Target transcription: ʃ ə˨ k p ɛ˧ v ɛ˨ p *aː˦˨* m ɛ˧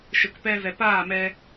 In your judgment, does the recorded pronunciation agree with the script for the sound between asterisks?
yes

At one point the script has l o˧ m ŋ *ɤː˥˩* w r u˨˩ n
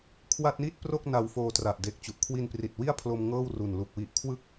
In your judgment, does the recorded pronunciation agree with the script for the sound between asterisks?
yes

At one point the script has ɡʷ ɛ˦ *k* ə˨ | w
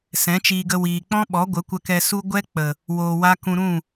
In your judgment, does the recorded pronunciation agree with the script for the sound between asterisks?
no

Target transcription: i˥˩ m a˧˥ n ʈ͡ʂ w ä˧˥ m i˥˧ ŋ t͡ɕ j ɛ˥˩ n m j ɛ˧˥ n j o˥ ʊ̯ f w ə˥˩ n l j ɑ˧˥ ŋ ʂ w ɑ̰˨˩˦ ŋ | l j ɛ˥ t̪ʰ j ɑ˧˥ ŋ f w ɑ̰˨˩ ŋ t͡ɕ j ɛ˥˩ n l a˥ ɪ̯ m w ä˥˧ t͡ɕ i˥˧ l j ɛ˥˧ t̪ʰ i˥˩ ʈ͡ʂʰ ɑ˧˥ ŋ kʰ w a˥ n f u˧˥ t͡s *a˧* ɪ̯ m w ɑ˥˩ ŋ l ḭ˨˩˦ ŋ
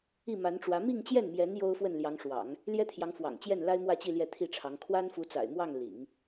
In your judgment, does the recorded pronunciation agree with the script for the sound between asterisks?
no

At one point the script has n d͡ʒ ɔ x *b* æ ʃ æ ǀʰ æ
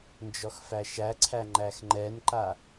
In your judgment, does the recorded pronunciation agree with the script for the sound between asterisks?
no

